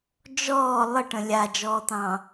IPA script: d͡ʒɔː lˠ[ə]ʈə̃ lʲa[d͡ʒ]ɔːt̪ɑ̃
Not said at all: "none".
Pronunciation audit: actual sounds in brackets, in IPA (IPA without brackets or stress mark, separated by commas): ə, d͡ʒ